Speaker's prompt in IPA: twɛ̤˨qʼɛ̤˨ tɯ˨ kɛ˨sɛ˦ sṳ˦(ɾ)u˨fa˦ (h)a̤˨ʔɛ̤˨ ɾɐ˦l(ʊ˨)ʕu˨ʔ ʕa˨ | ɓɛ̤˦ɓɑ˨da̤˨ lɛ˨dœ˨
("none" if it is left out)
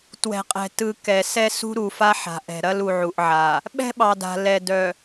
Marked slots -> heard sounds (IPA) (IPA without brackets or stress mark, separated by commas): ɾ, ħ, u˨